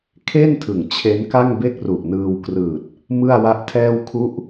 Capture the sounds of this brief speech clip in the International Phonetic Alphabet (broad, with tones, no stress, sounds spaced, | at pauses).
kʰ e˥˩ n tʰ ɯ˨˩ ŋ t͡ɕʰ e˦˥ n k a˥˩ ŋ b e˥˩ k̚ r u˨˩ ʔ n ɯː˧ w k r ɯː˨˩ t̚ | m ɯ˥˩ a̯ w a˥˩ ʔ tʰ ɛː˥˩ w kʰ u˦˥ ʔ